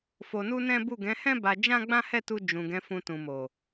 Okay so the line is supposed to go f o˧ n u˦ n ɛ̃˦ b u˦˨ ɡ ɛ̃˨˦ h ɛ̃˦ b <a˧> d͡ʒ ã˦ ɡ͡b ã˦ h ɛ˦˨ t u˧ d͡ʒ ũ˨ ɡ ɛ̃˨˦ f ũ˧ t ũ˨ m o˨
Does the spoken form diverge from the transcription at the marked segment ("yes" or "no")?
no